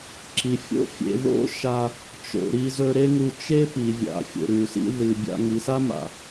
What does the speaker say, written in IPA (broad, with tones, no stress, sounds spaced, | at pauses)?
ǁ i˨ fʲ o̰˦ fʲ ḛ˧ ð o̰˦ ʃ a˧ | t͡ʃ o̰˧ ɾ i˧ z ɵ˧ ɾ e˦ ŋ u˧ t͡ʃ e˦ p i˨ vʲ a̰˨ fʲ o̰˨ ɾ ʉ˨ s ḭ˧ ð ɨ˨ bʲ a̰˧ ŋ i˨ s a˦ m a̰˨